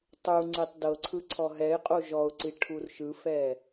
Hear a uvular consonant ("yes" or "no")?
yes